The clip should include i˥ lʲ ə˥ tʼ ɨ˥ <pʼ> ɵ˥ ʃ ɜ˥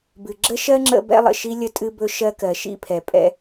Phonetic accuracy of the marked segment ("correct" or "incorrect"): incorrect